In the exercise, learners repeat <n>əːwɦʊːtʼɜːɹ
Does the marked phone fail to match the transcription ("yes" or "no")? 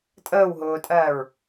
yes